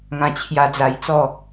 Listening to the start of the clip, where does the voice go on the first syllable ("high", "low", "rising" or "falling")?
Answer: low